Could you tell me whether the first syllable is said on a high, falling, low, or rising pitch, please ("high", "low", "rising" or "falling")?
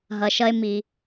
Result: low